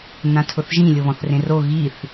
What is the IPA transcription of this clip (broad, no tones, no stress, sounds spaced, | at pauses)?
n ã tʰ ʊ θ ʒ ĩ lʲ o β ɔ̃ θ r ẽ r o ɣ i θ